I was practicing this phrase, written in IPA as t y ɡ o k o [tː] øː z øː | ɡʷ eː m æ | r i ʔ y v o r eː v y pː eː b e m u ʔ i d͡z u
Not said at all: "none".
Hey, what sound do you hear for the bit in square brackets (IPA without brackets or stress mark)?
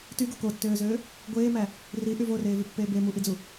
tː